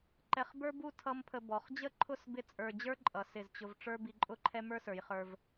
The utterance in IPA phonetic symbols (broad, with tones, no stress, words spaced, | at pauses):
ǃɛ˧χbə˞˥bu˥˧ tʰʌ˥mpʰə˧ bɔ˩˧χd͡ʑə˥˧ǃʰʊ˥˧s bɪ˥t͡sʼə˞˧ d͡ʑə˞˥ǃʼʌ˩˧ sɪ˧˩zt͡ɕʊ˧v ʈ͡ʂə˞˥bi˧ǃʼʊ˥˧ǃʰɛ˥ mə˞˥sə˞˩˧jχə˞˧v